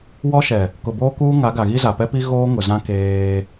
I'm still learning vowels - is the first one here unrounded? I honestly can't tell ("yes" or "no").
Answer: no